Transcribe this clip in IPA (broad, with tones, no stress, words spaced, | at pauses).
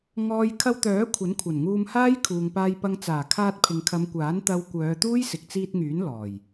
ŋɔː˧j kʰɐ˧wt̪œː˨˥ kʷʰɐ˨˥nkʷʰɐ˨˩nŋuː˧mhaː˥j kʰuː˨ŋpaː˧jpɐ˧ŋ t͡saː˨˩kʰaː˧t̚ pʰɪ˨ŋkʰɐ˨˧mkʷaː˨˥n t̪ɐ˧wkʷœː˨˧t̪uː˥j sɪ˨k̚t͡siː˧t̚ŋyː˨˥n lɔː˨˩j